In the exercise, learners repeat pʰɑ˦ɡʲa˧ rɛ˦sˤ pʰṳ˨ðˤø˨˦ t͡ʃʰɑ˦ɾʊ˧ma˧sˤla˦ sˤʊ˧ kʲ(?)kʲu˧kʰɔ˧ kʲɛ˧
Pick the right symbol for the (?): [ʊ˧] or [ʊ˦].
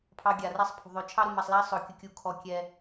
ʊ˧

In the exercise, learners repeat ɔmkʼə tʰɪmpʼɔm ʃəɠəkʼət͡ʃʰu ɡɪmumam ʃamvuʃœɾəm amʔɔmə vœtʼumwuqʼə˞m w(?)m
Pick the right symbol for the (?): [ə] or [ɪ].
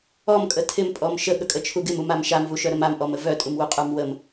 ə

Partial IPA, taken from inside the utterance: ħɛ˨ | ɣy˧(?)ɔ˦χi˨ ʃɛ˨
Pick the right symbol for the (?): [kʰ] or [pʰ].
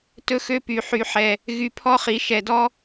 pʰ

